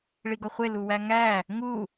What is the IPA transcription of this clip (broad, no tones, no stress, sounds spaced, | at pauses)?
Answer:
ɭ i ɡ ɒ χʷ e l u w æ ŋ æ | ŋ u